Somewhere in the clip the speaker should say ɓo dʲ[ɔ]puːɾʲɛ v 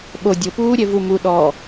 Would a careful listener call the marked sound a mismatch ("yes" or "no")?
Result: yes